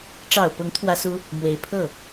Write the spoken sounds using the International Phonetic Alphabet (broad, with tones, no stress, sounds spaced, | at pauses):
ʈ͡ʂ ɑ˨˩ ʊ̯ p ʊ˧˥ ŋ t̪ʰ w ä˥ s u˥ | m w e˧˥ ɪ̯ pʰ ɤ˥˩